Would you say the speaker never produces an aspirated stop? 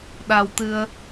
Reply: yes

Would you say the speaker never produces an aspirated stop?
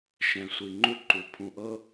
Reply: no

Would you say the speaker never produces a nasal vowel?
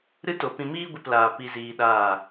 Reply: no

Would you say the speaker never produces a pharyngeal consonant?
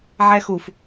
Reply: no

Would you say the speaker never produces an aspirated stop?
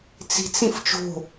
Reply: yes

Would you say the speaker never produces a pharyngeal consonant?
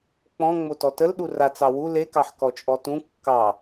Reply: no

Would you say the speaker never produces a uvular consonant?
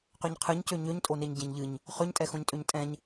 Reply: no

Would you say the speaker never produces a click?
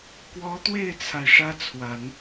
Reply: yes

